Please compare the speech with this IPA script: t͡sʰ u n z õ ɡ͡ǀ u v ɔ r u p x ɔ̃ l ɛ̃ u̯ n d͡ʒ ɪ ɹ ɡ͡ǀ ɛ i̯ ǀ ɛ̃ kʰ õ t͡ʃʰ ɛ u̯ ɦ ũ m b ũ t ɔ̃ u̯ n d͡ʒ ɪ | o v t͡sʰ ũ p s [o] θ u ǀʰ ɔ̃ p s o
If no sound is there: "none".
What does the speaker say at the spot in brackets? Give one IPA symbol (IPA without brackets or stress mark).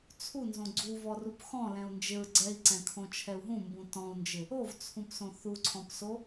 õ